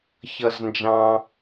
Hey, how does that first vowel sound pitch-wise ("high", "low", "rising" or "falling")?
low